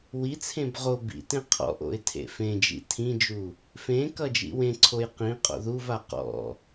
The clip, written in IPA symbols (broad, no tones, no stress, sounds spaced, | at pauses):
w i t͡sʰ ẽ b ʁ o b ḭ t ẽ qʰ ɔ̰ ʔ o̰ ɪ̯ tʰ ḛ f ẽ d͡ʒ ḭ tʰ ĩ d͡ʒ u | f ẽ k ʌ d͡ʒ ḭ w ẽ ǀʰ o j q ĩ qʼ o̰ ð u v a q ɔ̰